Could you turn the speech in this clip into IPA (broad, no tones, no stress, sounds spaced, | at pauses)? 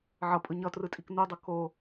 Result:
ʕ ʌ pʼ ɯ ɲ ʌ t r ɯ tʼ i k n u dˤ ɯ k o